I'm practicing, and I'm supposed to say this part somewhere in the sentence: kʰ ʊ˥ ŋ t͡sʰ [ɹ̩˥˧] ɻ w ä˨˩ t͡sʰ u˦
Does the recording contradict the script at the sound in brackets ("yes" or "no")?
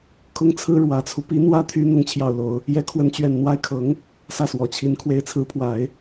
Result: yes